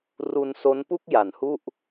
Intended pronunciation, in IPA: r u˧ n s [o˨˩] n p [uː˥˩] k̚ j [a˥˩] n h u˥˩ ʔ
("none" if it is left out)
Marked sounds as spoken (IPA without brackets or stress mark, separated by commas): o˦˥, u˥˩, a˩˦